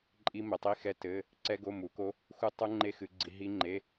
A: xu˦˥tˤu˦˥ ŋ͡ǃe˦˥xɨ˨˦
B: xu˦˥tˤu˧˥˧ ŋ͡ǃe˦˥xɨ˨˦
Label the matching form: A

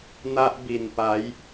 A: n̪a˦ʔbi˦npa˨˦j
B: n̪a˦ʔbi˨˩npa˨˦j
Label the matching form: B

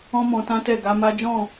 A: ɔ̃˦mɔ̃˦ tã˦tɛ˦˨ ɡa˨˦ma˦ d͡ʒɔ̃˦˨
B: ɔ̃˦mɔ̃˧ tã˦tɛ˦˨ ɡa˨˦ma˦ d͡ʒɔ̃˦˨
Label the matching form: B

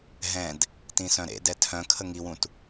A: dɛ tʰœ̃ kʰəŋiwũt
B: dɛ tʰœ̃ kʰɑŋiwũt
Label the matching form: A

